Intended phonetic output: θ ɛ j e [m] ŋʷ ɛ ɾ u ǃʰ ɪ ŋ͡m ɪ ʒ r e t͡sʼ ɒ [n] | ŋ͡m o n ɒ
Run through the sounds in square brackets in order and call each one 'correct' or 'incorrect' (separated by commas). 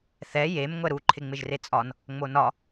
correct, correct